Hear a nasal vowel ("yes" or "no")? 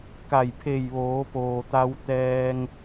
no